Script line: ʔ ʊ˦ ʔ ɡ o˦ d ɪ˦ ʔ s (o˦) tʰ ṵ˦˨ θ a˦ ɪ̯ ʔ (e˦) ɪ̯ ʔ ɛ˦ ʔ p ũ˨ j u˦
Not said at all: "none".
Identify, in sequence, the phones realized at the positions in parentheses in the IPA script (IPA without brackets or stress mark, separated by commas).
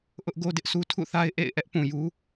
u˦, ḛ˦˨